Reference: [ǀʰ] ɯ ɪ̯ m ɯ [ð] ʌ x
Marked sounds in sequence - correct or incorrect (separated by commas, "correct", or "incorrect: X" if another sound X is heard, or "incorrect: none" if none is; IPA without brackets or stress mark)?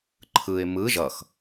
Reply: incorrect: ǃʰ, incorrect: ʒ